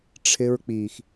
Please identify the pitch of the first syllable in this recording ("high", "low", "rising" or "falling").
high